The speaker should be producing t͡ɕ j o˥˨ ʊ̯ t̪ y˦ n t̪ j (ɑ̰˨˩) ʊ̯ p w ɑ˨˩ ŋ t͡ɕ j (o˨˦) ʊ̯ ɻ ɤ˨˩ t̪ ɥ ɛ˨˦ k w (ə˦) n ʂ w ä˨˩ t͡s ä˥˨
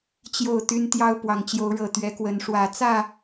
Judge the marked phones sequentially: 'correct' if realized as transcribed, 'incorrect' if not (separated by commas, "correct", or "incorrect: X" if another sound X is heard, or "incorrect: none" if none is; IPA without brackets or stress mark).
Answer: incorrect: ɑ˦, correct, incorrect: ə˨˦